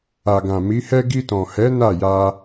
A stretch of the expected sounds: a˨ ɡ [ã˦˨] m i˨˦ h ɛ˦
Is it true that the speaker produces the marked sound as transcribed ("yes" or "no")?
no